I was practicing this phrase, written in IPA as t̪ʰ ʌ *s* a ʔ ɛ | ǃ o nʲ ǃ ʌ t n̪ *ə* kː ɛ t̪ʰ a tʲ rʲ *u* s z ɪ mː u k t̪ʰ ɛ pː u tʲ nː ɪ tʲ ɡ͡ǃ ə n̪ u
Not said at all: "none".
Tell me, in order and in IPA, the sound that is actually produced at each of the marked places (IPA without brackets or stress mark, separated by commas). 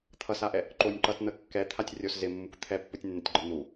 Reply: s, ə, o